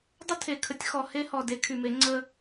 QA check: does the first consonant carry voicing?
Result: yes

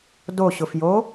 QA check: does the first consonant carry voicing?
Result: yes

